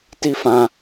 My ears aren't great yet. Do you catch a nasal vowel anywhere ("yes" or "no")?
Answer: yes